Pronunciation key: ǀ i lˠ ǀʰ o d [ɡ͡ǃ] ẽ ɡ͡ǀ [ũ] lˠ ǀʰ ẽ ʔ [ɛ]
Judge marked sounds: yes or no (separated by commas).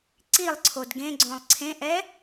no, no, yes